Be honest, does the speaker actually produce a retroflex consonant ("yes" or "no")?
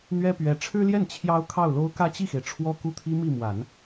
yes